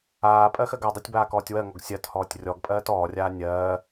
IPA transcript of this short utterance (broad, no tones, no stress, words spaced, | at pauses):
aː pʼɜxɜɡadˤɛtʲ baːkɔːtʲwɜŋɔɡ sʲɜthɔːtʲ rʲɔɡpʼɜːt ɔːrʲaː nʲɜː